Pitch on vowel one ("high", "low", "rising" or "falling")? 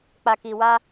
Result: low